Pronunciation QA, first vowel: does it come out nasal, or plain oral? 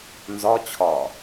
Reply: oral